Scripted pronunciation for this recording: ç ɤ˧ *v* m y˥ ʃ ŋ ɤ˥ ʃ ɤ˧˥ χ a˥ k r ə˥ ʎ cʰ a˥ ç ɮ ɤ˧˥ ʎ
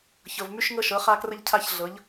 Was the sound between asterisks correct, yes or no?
yes